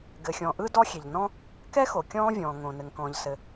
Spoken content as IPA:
ɡ ɘ˩ xʲ ɔ̃˩ ʔ ɯ˥ d ɔ˥ xʲ e˩ ʎ n ɔ̃˥ | k ɛ˥ x o˩ kʲ ɔ̃ː˥ vʲ ɔ̃ː˩ ŋ õ˩ n ɘ˩ ŋ k ɔ̃ː˩ ʎ s ɘ˩

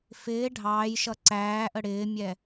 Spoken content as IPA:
f ɪː ɖʱ ɑː j ʃ ʌ ǀ æː ʔ ə ɽ ɪː mʲ ɛ

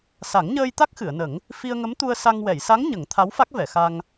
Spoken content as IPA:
s a˨˩˦ ŋ ɲ əː˧ j t̪ a˦˥ k̚ x ɨ˨˩˨ ə̯ n ə˨˩˦ ŋ | f i˧ ə̯ ŋ ə˧˥ m t̪ u˧ ə̯ s a˧ ŋ w ɛ˨˩˨ j s a˧˥ ŋ ɲ ə˨˩˦ ŋ t̪ʰ a˧˥ w f a˦˥ k̚ v ɛ˨˩˨ x a˧ ŋ

